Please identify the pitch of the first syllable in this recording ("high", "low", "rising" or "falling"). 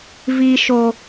high